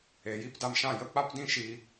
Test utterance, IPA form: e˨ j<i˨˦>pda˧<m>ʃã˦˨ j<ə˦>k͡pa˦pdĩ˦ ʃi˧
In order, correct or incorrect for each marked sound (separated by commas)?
incorrect, correct, correct